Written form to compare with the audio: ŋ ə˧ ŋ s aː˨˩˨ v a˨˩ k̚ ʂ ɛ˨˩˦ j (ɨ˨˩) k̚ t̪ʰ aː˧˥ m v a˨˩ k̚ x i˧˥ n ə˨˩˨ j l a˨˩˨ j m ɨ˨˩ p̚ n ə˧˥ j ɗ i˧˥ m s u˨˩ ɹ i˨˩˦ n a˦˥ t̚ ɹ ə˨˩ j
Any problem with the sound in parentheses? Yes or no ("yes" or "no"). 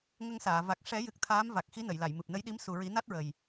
no